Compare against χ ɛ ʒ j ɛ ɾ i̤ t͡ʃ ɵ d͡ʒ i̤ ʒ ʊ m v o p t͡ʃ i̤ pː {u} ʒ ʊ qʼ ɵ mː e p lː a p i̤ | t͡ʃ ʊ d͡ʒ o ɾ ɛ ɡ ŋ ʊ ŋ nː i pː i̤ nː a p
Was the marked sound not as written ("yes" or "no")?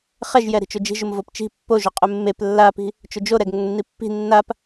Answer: yes